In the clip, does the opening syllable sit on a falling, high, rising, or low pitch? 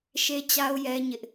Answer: high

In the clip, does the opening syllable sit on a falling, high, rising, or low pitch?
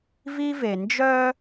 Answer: high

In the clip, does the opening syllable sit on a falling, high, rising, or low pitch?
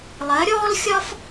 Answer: rising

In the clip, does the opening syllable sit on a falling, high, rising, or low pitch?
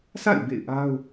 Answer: falling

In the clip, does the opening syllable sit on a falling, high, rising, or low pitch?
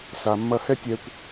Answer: low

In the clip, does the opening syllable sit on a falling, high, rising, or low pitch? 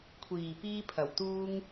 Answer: low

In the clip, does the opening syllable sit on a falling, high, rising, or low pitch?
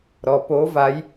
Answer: low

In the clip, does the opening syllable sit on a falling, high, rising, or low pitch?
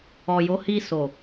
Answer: low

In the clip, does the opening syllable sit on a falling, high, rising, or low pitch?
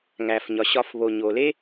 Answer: low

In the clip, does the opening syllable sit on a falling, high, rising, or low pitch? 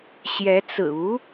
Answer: rising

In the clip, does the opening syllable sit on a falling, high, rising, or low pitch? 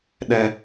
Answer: high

